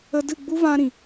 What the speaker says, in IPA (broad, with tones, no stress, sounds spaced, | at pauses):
ə˦ d ɨ˦˨ ɡ͡b u˦ v ã˦ ɾ ĩ˨